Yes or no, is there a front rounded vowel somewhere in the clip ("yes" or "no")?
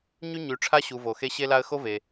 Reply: yes